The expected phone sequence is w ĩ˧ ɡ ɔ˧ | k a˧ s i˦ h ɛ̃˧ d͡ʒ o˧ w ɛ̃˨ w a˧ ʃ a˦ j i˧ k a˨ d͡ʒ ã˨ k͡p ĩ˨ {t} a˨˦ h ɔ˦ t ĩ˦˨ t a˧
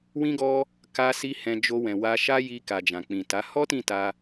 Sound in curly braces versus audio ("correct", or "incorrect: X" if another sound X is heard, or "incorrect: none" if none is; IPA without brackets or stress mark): correct